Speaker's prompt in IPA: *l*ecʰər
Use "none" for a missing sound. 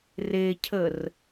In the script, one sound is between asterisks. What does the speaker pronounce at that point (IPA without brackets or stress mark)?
r